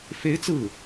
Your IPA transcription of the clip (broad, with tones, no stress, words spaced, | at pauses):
fe˧˥ɪ̯ t͡sɹ̩˥˩